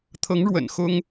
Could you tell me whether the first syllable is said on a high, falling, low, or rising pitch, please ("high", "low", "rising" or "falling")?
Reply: rising